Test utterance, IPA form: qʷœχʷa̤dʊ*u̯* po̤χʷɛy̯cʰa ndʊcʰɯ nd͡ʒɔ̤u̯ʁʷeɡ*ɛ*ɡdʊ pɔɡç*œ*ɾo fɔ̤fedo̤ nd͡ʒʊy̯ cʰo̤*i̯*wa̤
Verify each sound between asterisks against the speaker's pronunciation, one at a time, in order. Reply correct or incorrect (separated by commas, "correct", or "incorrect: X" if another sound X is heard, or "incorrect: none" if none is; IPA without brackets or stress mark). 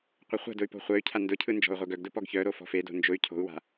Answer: incorrect: y̯, incorrect: œ, correct, incorrect: u̯